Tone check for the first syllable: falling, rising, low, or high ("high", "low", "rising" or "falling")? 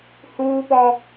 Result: high